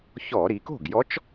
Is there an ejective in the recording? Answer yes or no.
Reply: no